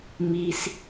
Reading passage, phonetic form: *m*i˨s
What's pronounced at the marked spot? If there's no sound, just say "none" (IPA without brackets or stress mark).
m